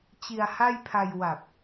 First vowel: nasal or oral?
oral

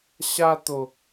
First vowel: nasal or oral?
oral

